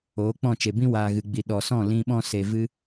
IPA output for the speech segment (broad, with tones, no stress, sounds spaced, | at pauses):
oː˨˦ k͡p ɔ̃˦˨ t͡ʃ e˨ b ĩ˦ w aː˨ ɣ ɨ˨ ɡ͡b i˨ ɗ ɔ˨ s ɔ̃˦˨ l ĩ˧ ɓ ɔ̃˦ s e˧ v ɨ˦